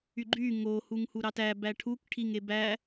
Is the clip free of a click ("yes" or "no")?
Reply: no